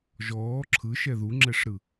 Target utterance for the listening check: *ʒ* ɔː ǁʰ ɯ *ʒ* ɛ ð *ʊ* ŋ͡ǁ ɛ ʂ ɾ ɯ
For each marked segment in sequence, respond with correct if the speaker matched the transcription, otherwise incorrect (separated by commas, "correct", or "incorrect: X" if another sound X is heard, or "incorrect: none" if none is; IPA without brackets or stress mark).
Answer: correct, incorrect: ʃ, incorrect: u